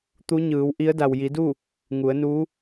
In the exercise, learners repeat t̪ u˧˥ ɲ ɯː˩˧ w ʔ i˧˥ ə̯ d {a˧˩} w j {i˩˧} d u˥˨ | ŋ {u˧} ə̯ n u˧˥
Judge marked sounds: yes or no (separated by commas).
no, yes, no